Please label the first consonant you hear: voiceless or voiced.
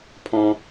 voiceless